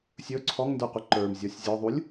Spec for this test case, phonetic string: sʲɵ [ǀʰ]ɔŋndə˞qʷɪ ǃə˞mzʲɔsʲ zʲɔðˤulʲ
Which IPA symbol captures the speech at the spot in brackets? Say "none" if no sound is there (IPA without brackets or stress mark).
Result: ǀʰ